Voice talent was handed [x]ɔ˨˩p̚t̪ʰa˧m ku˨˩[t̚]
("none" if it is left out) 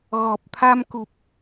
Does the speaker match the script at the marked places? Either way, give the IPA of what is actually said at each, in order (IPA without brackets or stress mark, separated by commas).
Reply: ɣ, p̚